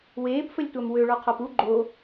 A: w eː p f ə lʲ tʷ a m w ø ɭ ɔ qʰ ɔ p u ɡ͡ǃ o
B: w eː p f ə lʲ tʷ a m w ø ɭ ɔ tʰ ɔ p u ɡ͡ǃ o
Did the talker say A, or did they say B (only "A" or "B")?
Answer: A